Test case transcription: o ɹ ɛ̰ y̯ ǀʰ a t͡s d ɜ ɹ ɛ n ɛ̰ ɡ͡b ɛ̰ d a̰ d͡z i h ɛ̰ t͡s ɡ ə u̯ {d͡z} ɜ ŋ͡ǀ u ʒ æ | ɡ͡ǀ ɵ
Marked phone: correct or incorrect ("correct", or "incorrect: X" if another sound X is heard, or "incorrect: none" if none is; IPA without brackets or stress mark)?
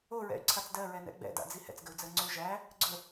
correct